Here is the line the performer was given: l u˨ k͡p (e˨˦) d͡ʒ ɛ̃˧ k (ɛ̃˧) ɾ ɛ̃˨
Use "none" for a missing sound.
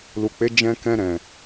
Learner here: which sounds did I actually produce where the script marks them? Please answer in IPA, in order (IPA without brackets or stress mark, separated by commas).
e˨˦, ɛ̃˧